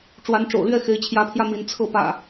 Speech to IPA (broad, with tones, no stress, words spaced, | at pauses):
ʈ͡ʂwa˨˦nʈ͡ʂo̰˨˩ʊ̯lɥɛ˥˨ xe˨˦ɪ̯t͡ɕʰjä˨˦pʰjä˧ mi˨˦nt͡sʰɤ˥˨pä̰˨˩